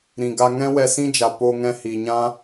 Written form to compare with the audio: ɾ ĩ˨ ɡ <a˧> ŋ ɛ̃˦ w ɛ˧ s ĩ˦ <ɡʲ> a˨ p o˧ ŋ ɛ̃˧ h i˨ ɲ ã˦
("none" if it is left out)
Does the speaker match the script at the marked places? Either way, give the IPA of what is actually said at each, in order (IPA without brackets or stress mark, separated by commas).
a˧, d͡ʒ